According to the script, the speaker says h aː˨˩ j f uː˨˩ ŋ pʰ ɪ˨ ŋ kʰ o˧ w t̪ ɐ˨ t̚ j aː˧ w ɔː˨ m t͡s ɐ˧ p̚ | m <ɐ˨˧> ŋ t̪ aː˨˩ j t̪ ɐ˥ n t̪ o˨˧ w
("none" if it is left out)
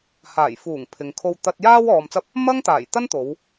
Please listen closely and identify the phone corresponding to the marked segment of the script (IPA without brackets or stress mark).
ɐ˥